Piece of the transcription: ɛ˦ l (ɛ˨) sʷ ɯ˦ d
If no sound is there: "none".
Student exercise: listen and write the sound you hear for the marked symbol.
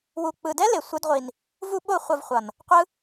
e˨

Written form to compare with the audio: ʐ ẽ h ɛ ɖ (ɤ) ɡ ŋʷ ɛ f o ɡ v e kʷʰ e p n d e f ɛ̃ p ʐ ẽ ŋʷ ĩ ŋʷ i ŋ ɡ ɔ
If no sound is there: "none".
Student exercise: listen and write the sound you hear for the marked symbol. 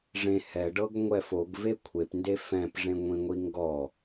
ɤ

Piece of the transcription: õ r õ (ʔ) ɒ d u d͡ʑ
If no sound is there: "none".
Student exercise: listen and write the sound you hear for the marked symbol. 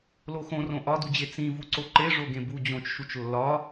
ʔ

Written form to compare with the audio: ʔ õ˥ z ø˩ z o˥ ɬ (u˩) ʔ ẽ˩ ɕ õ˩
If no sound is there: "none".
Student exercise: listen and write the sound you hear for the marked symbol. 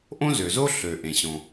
ø˩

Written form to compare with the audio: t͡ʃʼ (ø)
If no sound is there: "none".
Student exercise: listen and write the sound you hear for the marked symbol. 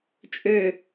ø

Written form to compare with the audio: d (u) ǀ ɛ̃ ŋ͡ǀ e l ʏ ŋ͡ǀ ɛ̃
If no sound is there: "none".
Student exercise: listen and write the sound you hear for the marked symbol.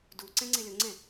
u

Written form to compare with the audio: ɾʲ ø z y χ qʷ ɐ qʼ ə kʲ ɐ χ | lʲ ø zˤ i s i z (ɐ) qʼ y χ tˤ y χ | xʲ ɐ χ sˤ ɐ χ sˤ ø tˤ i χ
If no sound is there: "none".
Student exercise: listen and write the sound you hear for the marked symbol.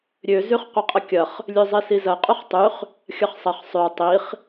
ɐ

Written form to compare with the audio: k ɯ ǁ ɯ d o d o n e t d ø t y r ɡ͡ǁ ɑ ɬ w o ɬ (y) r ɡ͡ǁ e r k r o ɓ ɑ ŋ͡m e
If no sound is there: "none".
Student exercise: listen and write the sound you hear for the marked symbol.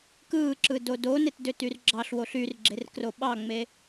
y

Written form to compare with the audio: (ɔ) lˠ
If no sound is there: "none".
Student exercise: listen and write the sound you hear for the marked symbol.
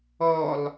ɔ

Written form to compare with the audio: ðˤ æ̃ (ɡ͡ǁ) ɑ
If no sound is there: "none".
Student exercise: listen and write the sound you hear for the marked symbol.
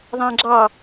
ɡ͡ǁ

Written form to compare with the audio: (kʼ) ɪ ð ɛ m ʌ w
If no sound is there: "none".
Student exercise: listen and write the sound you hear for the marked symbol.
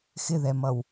x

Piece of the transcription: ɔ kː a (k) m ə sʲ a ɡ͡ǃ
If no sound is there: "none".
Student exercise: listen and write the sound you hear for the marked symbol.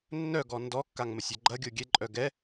ŋ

